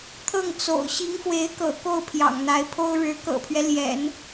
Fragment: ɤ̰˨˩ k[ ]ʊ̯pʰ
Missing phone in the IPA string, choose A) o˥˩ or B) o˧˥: A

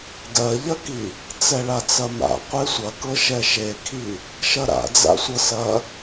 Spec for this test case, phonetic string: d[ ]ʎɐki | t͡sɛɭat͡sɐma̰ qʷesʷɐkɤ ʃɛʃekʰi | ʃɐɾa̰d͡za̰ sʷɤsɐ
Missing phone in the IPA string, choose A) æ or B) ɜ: B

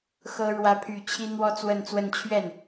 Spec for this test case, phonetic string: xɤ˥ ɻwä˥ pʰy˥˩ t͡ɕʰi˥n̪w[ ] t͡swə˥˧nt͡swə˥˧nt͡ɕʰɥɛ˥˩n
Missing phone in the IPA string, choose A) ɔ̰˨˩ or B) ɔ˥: B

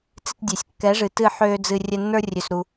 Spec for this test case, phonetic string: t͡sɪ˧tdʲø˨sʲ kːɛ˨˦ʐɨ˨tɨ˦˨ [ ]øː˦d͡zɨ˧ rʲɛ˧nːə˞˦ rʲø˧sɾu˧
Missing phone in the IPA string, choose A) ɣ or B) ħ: B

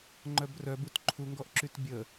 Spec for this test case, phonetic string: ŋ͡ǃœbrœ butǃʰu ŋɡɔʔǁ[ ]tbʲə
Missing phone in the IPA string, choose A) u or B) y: B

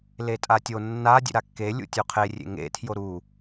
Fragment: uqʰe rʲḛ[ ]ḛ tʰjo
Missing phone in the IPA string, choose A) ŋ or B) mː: A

